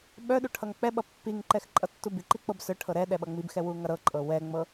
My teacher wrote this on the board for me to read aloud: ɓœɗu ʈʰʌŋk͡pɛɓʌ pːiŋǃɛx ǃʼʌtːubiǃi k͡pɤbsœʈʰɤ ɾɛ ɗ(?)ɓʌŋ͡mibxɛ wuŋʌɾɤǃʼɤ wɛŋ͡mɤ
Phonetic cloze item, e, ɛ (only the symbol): ɛ